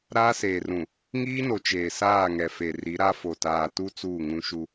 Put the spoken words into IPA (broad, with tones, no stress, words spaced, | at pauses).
ɾaː˦seː˨rũ˨ | ŋiː˦no˨ t͡ʃeː˨saː˦˨ŋɛ˨fe˨ ri˨˦ɾa˦fo˨ taː˨tu˦ t͡suː˦˨ŋũ˦ʃu˦